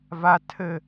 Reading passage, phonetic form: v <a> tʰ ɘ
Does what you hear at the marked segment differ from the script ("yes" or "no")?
no